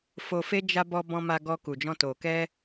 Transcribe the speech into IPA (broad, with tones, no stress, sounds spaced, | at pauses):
f o˧ f e˦ d͡ʒ a˧ b ɔ˧ b ɔ̃˧ m a˧ ɡ ɔ˧ k u˨ d͡ʒ ɔ̃˧ t o˨ k ɛ˧